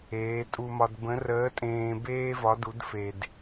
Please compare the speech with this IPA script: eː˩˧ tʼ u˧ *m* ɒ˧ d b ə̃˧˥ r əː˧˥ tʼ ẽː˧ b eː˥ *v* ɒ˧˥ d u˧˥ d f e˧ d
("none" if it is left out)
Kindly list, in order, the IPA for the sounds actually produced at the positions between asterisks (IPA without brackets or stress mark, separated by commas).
m, v